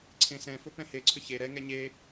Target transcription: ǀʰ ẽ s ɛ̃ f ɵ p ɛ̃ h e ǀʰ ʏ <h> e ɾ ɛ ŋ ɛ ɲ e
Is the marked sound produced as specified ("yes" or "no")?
no